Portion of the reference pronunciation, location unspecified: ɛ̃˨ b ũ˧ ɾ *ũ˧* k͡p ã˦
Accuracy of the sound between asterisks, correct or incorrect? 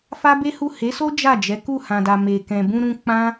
correct